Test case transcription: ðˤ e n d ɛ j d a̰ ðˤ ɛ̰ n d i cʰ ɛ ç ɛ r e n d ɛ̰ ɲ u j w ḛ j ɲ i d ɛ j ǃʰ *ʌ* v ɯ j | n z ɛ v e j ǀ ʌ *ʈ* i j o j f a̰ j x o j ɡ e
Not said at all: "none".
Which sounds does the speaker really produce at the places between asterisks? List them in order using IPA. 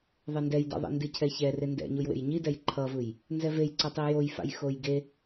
ʌ, tˤ

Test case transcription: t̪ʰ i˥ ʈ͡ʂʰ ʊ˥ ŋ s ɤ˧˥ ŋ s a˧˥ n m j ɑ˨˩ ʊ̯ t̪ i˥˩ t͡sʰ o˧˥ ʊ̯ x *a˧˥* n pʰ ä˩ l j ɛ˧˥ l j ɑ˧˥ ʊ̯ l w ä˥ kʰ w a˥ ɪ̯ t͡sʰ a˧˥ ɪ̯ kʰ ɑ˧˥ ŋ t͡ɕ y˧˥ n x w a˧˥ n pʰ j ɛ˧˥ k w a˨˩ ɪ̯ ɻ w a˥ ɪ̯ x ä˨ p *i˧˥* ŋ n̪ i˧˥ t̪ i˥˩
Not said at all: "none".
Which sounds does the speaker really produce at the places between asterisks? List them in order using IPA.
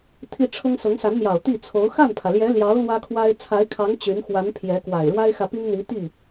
a˥˩, i˥

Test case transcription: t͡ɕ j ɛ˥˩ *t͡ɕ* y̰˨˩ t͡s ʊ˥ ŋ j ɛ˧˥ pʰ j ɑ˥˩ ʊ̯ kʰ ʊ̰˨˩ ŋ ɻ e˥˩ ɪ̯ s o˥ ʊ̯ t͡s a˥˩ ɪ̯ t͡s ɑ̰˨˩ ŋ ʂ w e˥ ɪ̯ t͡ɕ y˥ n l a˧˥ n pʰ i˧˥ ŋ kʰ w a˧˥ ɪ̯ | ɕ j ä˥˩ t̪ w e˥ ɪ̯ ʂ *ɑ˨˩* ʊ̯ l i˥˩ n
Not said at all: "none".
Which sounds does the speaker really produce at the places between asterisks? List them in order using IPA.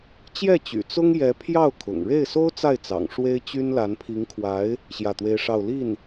t͡ɕ, ɑ˥˧

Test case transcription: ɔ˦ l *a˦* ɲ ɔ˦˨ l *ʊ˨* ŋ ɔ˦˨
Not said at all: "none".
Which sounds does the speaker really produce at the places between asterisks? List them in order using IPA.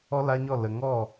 a˦, ə˨

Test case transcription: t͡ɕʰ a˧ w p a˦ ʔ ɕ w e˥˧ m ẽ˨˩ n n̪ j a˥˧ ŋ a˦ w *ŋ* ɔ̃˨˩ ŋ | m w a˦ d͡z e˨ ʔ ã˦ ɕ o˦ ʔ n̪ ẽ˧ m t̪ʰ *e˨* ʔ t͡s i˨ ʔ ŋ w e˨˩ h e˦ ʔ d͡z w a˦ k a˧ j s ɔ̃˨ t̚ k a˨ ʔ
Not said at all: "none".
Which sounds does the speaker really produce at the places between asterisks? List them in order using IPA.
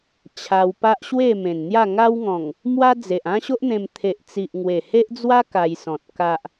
ŋ, e˨

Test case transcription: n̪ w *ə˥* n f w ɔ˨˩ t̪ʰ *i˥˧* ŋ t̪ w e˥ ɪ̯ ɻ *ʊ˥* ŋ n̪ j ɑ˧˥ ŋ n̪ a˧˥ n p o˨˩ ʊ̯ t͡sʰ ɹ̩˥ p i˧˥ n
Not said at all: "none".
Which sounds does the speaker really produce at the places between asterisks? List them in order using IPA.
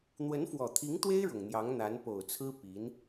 ə˧˥, i˧˥, ʊ˨˩

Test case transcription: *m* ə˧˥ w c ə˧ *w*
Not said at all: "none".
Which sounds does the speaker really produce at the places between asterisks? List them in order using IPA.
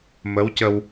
m, w

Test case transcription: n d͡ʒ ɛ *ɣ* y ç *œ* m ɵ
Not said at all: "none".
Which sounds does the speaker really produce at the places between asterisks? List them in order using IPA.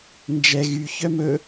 ɣ, œ

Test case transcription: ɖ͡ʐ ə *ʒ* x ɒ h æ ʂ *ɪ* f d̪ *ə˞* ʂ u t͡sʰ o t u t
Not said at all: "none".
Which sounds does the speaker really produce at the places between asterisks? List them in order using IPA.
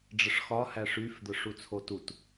ʂ, y, ə˞

